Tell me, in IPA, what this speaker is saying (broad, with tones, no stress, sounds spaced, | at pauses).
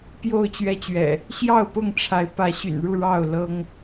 p j o˥˨ ʊ̯ t͡ɕ ɥ ɛ˦ t͡ɕ ɥ ɛ̰˨˩ | ɕ j ɑ˥˨ ʊ̯ p ʊ˥˨ ŋ ʈ͡ʂʰ a˨˦ ɪ̯ p ä˨˦ ɕ y̰˨˩ n ɻ u˥˨ ɻ ɑ˥˨ ʊ̯ l ɤ˦ ŋ